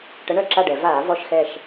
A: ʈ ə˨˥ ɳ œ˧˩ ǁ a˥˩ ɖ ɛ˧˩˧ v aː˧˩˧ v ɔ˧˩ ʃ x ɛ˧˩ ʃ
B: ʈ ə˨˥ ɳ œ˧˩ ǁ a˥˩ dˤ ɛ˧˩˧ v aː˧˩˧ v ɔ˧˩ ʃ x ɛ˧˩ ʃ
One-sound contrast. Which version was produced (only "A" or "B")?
A